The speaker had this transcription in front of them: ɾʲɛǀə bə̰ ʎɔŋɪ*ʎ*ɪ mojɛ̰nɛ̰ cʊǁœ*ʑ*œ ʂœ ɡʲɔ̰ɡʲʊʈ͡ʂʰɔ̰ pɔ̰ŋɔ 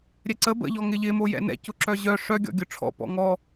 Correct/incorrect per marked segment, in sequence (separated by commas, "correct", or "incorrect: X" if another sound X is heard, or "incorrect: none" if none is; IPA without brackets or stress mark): correct, correct